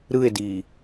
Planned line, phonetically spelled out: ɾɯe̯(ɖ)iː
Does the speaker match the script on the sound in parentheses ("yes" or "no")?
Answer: no